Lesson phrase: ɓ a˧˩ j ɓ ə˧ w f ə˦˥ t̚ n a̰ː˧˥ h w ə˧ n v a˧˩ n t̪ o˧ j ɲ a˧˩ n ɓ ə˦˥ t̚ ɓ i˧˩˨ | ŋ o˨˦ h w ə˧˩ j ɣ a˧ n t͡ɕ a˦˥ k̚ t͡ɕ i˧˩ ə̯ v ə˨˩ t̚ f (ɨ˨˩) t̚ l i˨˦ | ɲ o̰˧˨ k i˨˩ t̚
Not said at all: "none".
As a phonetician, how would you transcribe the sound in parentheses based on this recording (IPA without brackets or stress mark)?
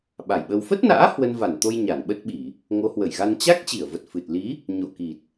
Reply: ɨ˨˩